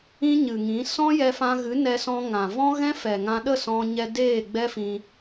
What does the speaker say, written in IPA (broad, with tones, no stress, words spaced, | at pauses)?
ĩ˦ɲɨ˨ŋĩ˨˦ sɔ̃˦jɛ˧fã˧ɣɨ˨˦ nɛ˧sɔ̃˧ ŋã˨vɔ̃˦ ɣɛ̃˦fɛ˨ ŋã˧ɗə˦˨ sɔ̃˧ɲɛ˧ deː˦˨ɡ͡bɛ˦fĩ˧